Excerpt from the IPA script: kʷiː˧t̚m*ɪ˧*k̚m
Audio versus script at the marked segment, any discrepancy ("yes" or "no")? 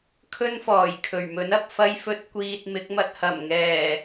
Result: yes